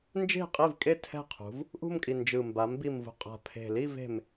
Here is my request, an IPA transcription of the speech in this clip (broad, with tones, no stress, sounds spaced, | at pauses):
n d͡ʒ e̤˥˩ qʼ i˥˩ v kʼ e˥˩ tʰ ɛ̤˥˩ qʰ ṳ˩˧ v | ʔ ṳ˥˧ m kʼ i˨˩ n d͡ʒ ɯ˨˩ m b a˩˧ m b i˨˩ m v ṳ˨˩ qʼ a̤˨˩ pʰ e̤˨˩ l i˥˧ v e̤˨˩ m